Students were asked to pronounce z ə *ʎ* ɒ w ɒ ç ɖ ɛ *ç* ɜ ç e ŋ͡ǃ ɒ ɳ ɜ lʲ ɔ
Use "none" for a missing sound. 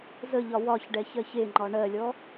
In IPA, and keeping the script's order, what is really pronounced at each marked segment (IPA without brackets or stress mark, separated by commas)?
ʎ, ç